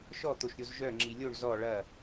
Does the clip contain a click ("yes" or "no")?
yes